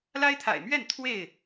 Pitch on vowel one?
high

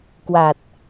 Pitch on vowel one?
low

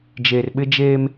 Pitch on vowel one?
low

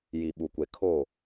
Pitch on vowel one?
low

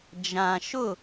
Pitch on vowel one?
low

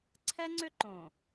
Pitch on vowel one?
high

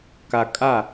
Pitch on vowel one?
low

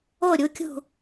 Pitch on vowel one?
falling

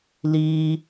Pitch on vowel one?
high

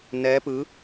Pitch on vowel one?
rising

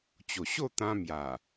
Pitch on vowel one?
low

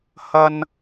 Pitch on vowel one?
high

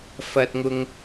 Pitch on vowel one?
low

